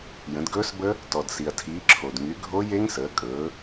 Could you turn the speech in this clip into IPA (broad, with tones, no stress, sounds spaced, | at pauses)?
j ə̃˩˧ d ɡ ɵː˦˥ s b ə˦˥ | t ɔ˩ d s i˩ ɐ̯ tʰ iː˩˧ ǁʰ o˩ d ŋ y˩˧ ɡʱ o˦˥ j e˦˥ ŋ s əː˩˧ kʼ ɵː˩˧